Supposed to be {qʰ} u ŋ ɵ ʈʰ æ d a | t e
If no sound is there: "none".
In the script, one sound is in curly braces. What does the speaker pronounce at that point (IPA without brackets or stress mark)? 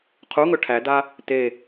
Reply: qʰ